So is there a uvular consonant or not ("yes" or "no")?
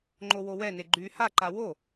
no